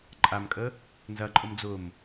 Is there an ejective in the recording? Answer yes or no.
yes